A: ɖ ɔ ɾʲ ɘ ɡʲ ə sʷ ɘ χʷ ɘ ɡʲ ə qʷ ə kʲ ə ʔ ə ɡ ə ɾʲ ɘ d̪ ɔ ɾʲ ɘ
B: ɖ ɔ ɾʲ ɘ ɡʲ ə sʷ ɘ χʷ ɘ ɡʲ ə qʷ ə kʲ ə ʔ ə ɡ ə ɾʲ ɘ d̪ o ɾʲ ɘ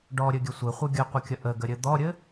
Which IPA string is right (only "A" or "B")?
A